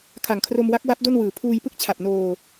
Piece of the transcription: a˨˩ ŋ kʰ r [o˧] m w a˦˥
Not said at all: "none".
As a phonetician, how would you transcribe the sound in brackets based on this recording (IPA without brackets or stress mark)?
o˧